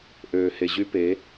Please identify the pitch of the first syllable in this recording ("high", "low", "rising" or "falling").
low